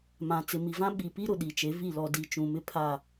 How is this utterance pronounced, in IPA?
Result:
m ã˨ t͡s ɪ˨ m i˨ v ã˦ ɓ i˨ p i˦ ɾ ʊ˨ ɗ i˨ t͡ʃ e˨˦ v i˦˨ l ɔ˨ d i˨ t͡ʃ ũ˨ m ɪ˦ pʰ a˦˨

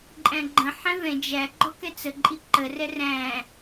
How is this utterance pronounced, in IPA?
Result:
ǃʼ æ̃ ɡ͡ǃ ə̃ ħ ɛ̃ v ɛ̃ d͡ʒ æ ɡ͡ǃ ɔ k ɛ t͡s ə ǃʼ i ǃ ə r ɛ r æ̃

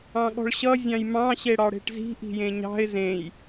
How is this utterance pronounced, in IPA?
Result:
ɑ̃ ɠ ɔ̤ ɭ ɕ ʌ zʲ ɑ̃ j m ɑ̃ ɕ e ɽ ɑ ɽ e̤ ʈ z i̤ ʔ i̤ j ẽ ɲ ɑ̤ ɪ̯ z ẽ j

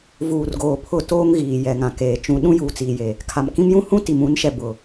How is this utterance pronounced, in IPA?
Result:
v uː˨ r ɡ oː˨ pʰ ʊ˦˨ t oː˦ ŋ ɣ iː˨ j ɛ˨ ŋ ã˨ k eː˨ t͡ʃ ũ˨ ɗ ũ˦ j uː˨ t͡s iː˨ j e˨ | kʰ a˨ m k ĩ˦ m j ũ˦ h ũ˦ t i˨ m ũ˨˦ n ʃ ɛ˨ b ʊ˨

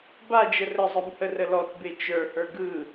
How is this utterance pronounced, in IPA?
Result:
b a d͡ʒ ə r ə zˤ ɯ m h ə r ə l ɔ t b e t͡ʃ ə˞ h ə˞ ɡ ɯ

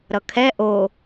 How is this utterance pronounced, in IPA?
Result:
ɾ ʌ kʰ ɛ ʔ o

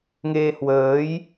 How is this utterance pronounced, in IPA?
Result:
ŋ e˧ h w əː˨˦ j

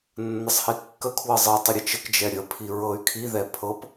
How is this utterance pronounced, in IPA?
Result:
nː ə sˤ h i kː ə kʰ w ɤ zˤ ɤ tˤ ə ɾʲ ə t͡ʃ ə k d͡ʒ ɛ ɾʲ ə pʰ i ɹ ɤ y̯ kʰ i ð ɛ pʰ ɤ p

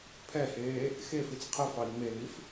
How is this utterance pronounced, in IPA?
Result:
pʰ ɛ h eː | x e f i t͡s qʰ ɛ f ɑ i̯ ŋ͡m e l i f

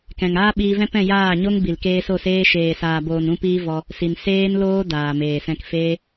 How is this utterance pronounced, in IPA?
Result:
k ɛ̃˨ ŋ aː˦ ɓ iː˧ v ɛ̃˦ p ɛ̃˦˨ j aː˦˨ ɲ o˦ ŋ b i˨ l k eː˧ s o˦˨ s eː˦ ʃ eː˨ s aː˨ b oː˨ n ũ˧ p iː˦ v ɔ˧ | s i˨ n s eː˦ n l oː˦ d aː˨ m eː˨ s ɛ̃˧ k f eː˦

